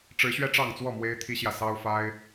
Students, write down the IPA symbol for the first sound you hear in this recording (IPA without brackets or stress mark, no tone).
ʈ͡ʂ